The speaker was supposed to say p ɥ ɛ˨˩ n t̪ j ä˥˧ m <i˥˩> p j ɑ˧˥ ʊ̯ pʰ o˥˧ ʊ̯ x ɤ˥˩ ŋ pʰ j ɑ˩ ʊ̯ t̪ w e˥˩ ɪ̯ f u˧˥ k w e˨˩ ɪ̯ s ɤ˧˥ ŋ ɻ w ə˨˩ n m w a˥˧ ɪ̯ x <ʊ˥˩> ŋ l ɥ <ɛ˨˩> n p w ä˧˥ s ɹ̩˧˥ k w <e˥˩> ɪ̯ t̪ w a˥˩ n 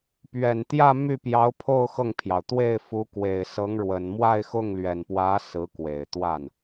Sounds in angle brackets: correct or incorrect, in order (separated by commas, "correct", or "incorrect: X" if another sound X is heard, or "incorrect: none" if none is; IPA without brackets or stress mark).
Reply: incorrect: y˥˩, correct, correct, incorrect: e˨˩